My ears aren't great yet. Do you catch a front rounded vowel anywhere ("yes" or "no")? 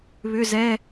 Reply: yes